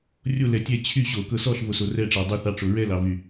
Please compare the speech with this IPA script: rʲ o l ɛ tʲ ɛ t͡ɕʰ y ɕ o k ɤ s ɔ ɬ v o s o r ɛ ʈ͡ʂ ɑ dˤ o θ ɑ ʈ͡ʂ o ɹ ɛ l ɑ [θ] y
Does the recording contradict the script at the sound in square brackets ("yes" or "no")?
yes